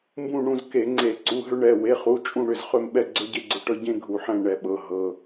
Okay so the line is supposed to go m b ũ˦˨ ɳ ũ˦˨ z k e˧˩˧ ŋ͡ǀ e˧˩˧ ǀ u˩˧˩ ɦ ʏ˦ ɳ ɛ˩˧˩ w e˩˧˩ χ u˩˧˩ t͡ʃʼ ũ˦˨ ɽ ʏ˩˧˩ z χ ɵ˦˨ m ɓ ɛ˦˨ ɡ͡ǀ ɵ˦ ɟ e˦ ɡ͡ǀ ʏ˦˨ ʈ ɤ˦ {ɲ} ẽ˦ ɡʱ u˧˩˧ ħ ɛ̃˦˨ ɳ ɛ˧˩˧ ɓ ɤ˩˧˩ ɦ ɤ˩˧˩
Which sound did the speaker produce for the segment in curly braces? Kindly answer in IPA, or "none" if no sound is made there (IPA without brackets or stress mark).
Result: ɟ